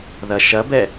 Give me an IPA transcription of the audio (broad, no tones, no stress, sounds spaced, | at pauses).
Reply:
ð ɐ ʃ ɐ b ɛ